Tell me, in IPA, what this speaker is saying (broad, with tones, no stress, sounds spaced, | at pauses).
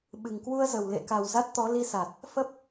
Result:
ɓ ɨ˨˩ ŋ k w u˧ ə̯ z ə˨˩ w l ḛ˧˨ k a˨˩ w z a˦˥ t̚ t̪ ɔ˨˦ l i˧ s a˨˩ t̚ | f ə˦˥ p̚